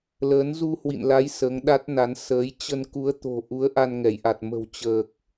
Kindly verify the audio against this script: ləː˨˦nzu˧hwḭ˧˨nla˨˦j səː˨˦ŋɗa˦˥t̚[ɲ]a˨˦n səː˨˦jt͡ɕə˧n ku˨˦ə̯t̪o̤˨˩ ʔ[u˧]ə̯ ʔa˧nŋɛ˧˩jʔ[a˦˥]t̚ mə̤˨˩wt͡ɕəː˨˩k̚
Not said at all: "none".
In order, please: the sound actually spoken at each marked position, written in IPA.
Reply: n, u˨˦, a˨˩

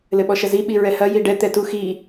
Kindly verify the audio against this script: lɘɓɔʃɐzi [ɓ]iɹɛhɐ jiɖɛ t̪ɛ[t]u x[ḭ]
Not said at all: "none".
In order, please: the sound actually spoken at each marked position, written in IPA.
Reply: ɓ, t, i

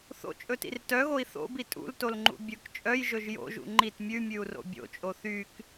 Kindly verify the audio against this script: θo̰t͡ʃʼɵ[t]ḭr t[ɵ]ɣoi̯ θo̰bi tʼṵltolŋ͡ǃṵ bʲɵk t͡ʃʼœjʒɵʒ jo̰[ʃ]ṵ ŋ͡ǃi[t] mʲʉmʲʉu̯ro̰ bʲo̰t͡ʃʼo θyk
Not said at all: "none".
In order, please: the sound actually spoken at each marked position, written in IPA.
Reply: t, œ, ʒ, t

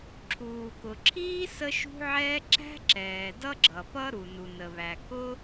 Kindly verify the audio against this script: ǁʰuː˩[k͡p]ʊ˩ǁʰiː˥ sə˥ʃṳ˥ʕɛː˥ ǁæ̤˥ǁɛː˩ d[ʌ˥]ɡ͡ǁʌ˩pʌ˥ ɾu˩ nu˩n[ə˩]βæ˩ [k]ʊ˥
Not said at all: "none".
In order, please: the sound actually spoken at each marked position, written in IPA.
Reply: k, ʌ˥, ə˩, k

